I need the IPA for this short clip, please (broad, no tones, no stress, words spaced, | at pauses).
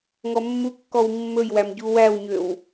ŋɔmːukːɔw mːɵjwæm ɟuwæwɲøw